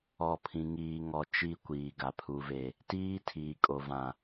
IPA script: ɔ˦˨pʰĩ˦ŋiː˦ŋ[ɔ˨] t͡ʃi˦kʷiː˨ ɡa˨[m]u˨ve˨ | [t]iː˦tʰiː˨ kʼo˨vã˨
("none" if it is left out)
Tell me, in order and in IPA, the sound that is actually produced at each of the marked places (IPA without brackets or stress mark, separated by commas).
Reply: ɔ˦, pʰ, t